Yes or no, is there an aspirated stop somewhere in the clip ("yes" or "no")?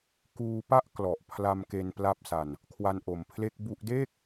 yes